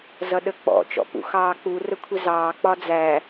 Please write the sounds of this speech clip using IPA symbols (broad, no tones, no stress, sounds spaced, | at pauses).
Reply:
z ʌ ɗ ə k͡p ɔ̰ t͡ʃ ɔ̰ p ṵ x ɑː k͡p u r ə kʷʰ ɪ z ɑː k͡p ɒ d͡z æ